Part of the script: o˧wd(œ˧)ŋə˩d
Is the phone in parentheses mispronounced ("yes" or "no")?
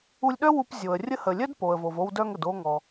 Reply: no